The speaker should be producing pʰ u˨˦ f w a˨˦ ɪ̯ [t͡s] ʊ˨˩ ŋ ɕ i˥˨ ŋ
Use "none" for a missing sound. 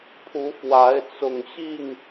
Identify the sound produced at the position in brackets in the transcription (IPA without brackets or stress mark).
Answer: t͡s